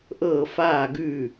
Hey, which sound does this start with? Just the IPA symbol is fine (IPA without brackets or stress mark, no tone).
ʔ